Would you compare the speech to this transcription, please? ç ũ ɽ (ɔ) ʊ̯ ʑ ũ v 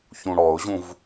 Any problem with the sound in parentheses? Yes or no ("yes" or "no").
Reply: no